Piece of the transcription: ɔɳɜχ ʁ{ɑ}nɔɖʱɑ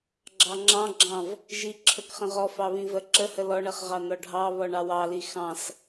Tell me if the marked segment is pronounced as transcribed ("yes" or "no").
yes